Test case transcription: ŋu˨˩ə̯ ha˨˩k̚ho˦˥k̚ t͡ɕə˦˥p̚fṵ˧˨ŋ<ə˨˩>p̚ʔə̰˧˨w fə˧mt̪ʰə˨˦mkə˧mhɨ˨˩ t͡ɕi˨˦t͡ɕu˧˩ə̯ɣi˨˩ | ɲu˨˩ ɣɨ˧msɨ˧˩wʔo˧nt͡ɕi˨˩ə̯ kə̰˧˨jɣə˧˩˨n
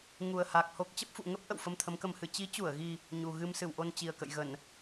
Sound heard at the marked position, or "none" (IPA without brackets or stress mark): ə˦˥